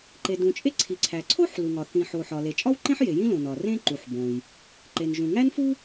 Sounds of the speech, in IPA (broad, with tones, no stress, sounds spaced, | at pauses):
ǃ e˩ d ũ˩ t͡ʃʼ e˥ ǀʰ i˩ ǀʰ æ˩ ǀʰ o˥ ħ l u˩ ŋ ɒ˩ θ ĩ˩ ħ o˩ ħ ɒ˩ l e˩ t͡ʃʼ ɒ˥ w ǃ ẽ˥ ħ j e˩ j ĩ˥ l õ˩ n ɒ˩ r ẽ˥ ǃ u˩ ħ b õ˩ j | ǃ e˩ n ʒ ũ˩ ŋ æ˥ n f u˥